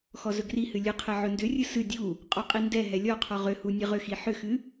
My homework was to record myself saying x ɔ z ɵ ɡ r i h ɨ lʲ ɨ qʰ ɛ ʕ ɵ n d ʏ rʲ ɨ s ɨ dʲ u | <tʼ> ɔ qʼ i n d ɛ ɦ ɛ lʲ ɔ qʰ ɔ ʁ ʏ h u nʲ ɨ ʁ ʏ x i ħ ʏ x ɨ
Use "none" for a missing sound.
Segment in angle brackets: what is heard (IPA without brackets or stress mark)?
qʼ